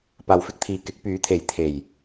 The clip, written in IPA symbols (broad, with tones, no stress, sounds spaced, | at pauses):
p aː˨ w f ɪ˧ k̚ t̪ʰ iː˨ k ɪ˨˥ k̚ p yː˨˥ t̪ʰ e˨˥ j t̪ʰ e˨˩ j